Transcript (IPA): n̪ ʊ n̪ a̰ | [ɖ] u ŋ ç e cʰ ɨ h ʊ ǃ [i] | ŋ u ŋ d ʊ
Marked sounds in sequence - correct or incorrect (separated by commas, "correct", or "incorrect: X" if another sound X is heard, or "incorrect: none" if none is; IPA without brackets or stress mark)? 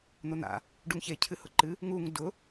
correct, incorrect: ɨ